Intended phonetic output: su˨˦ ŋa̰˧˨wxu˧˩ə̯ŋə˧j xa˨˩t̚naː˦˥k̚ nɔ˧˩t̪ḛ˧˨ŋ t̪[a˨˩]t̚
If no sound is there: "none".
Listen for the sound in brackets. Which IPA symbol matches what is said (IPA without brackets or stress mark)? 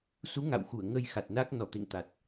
a˨˩